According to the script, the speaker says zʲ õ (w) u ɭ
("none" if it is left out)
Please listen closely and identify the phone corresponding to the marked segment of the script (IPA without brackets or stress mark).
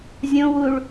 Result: w